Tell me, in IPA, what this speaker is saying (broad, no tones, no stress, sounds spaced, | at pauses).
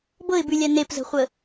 b ɤ ɪ̯ b ʉ lʲ a n e p z ə̤ χʷ ə